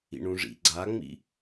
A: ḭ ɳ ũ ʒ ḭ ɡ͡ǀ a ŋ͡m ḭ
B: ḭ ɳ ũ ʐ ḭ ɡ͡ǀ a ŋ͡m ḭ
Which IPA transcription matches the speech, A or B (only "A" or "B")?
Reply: B